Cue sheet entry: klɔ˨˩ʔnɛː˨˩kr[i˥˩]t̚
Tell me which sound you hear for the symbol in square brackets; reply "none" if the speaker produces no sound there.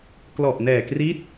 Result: i˦˥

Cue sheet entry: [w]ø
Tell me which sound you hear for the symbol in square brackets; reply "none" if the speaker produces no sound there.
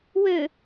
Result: w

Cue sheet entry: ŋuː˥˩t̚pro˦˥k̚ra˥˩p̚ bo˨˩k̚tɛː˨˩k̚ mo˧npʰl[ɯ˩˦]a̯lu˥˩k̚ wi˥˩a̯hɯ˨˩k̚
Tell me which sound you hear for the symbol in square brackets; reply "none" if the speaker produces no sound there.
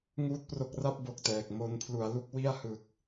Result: u˩˦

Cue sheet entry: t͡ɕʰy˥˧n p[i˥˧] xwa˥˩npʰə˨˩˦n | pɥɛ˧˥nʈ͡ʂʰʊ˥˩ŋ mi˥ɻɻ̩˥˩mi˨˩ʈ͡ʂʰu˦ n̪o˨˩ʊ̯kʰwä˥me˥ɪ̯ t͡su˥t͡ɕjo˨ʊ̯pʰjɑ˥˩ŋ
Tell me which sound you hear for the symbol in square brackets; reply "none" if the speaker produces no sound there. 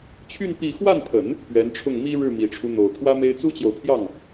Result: i˥˧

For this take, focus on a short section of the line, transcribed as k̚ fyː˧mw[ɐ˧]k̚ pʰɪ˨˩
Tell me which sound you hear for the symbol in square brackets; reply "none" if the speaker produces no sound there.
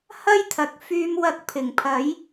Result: ɐ˧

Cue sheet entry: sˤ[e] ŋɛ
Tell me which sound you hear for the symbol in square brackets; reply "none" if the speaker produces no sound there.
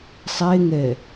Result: e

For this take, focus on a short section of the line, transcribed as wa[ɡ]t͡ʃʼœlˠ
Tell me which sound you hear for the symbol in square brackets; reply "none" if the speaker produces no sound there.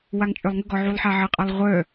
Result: ŋ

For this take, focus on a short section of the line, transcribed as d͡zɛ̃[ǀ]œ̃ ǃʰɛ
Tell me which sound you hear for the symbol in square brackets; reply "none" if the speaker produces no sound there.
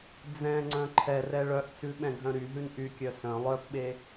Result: ŋ͡ǀ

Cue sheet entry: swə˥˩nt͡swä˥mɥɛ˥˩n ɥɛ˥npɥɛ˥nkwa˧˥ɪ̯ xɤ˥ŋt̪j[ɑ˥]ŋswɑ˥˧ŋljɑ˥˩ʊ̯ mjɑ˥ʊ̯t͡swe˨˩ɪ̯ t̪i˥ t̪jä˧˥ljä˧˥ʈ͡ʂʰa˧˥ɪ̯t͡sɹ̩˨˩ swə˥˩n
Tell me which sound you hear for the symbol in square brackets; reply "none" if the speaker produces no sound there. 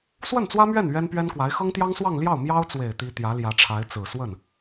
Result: ɑ˥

